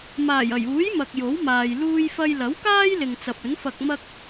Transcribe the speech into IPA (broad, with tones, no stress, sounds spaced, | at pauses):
m aː˨˩ j ɐ˨˩ j uː˨˥ j m ɐ˨ k̚ j o˨˥ w m aː˨ j l uː˧ j f ɐ˧ j l ɐ˨˥ w k aː˥ j l ɪ˨ ŋ t͡s ɐ˨ p̚ ɵ˨˥ n f ɐ˧ k̚ m ɐ˥ k̚